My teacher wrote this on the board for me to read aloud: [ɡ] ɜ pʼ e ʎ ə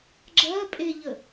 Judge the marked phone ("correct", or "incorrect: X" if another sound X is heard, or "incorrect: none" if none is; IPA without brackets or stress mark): incorrect: ɡ͡ǁ